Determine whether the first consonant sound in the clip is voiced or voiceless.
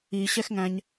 voiceless